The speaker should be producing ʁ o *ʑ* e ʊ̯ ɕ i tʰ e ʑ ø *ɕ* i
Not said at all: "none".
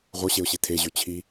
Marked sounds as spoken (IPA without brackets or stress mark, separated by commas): ɕ, t͡ɕʰ